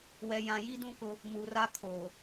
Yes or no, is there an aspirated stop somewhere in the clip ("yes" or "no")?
yes